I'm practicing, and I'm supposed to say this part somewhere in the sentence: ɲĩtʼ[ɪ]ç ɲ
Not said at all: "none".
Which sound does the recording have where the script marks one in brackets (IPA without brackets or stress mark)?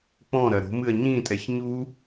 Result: ɛ